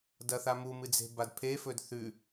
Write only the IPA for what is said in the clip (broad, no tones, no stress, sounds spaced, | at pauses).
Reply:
d ɐ θ a m u m ɨ d͡z e̤ b a d pʰ e f ɵ d θ ʉ